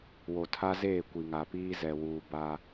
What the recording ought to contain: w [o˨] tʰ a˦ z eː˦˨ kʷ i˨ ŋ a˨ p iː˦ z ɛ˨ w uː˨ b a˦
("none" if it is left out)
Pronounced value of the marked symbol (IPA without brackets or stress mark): o˨